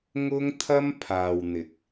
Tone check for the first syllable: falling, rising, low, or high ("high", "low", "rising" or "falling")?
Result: high